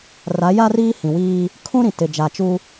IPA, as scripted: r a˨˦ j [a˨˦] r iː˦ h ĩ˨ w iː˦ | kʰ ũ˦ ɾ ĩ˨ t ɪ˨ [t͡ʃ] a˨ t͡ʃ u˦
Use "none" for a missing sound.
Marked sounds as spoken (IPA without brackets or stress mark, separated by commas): a˦, d͡ʒ